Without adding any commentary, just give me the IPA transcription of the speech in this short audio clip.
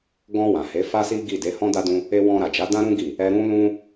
ɡ ɔ̃˧ w ã˨ h e˨˦ f a˦ s i˦ ɡ i˦˨ d e˨˦ h ɔ̃˦ d a˦ d ũ˦ | e˧ w ɔ̃˧ ɾ a˨ d͡ʒ a˨˦ d ã˦ ɾ ũ˦ ɡ i˦˨ | ɛ˧ ɾ ũ˦ l ũ˦

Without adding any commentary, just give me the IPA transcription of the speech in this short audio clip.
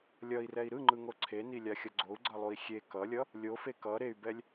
lʲ ʌ i̯ r ɛ i̯ ɾ ɯ ŋ͡ǃ ɯ ŋ o ǀʰ e n i lʲ a xʲ ʌ ɡ͡ǀ o u̯ ɡ͡ǀ ʌ lˠ u i̯ xʲ e k ʌ lʲ ʌ | lʲ o f e k ʌ ɾ e y̯ b ɛ lʲ

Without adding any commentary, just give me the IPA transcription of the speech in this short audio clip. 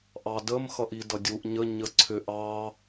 ʔ ɑ d ə m x ʌ ʔ i d ʌ dʲ u ʔ ɲ ə ɲ ə ǀʰ ʏ ʔ ɑ

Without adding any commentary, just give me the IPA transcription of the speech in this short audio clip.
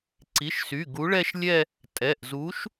ǀ i˩˧˩ ʃ s y˩˧˩ ɡ u˨˥ ɭ ɛ˥˧ ʃ lʲ ɛ˥˧ | tʼ ɛ˩˧˩ ʔ z u˨˥ ʃ

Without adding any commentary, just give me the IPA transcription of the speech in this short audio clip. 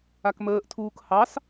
a k m əː ʔ tʰ uː k h ɑ s

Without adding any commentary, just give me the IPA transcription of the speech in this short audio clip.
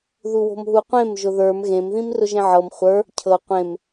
ð u w o̤ m ɦ u qʷ ẽ m ʒ ʊ ð ə˞ m ɣ ẽ m ð ĩ m r ʊ ʒ ẽ ʕ ɤ m χʷ ə˞ | cʰ ɤ qʷ ẽ m

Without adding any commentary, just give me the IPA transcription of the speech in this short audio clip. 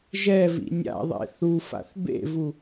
ʒ ɛ v ḭ nʲ a̰ ðˤ ḛ θ u f a̰ θ b ḛ v u

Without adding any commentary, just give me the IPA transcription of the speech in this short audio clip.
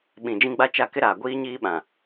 ɓ ĩ˨ d͡ʒ ĩ˦ ɡ͡b a˦ t͡ʃ a˦˨ k ɪ˦ ɾ aː˨ ɡʷ iː˦ ɲ iː˦ ɓ ã˨

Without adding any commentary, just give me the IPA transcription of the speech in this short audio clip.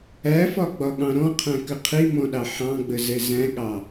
æ f ɒ ɡ͡b ɒ ɠ ɑ̃ ɾ ɔ̃ qʰ æ̃ k ə qʰ i m ɔ̃ ɗ ɑ ħ ɑ̃ ɡ͡b ə z ɛ z æ̃ ɠ ɑ

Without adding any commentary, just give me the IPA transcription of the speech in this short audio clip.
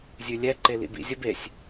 zʲ ʉ lʲ ɛ ǃ e l ḭ b ḭ zʲ ə b e sʲ

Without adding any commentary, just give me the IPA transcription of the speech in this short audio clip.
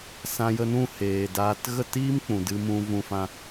s ã˧ j ə˧ n ũ˦˨ h eː˨ d aː˧ t ɣ ə˦˨ t iː˦ m k͡p ũ˨ d ɨ˧ m ũ˧ v ũ˧ f ã˧

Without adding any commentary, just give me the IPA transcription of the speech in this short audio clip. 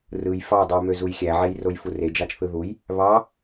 r ɯ j f ɑ dˤ ɯ j m ø z u j xʲ æ ʕ e j r o j f u r e d͡ʒ ɑ t͡ʃ θ ɯ ð u j | β ɑ

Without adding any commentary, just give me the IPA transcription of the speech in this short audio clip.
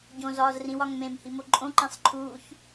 ɟ õ z ɒː z r ĩ w ɒ ŋ m ẽ m h i m o ǃʼ õ ǃ ẽ sˤ ǃʰ uː ç

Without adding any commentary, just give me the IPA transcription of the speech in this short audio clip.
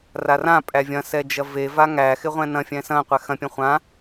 r a r ã pʼ æ vʲ ɐ̃ s ɛ d͡ʒ ɐ v e v a ŋ æ x ɪ ʁʷ ɛ̃ n ɐ̃ fʲ ɛ̃ s ɐ̃ qʷ ɛ x ɐ̃ pʲ ɐ̃ χʷ ã

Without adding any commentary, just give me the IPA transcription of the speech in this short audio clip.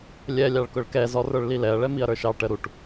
lʲ ɛ lʲ ɑ ɭ k ʊ ɭ k ɛ z ɔ r ə˞ ɭ l i l ɛ ɐ̯ ɭ ɛ m i ɐ̯ ɾ ə˞ ʃ ɑ ʈ ə ɾ u ʈ

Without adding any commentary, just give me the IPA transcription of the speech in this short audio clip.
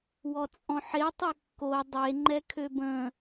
w ɔ t͡sʼ ɔ̃ ħ e tˤ y kː o dˤ e ŋ͡ǃ ɛ kʰ ø b ə̃

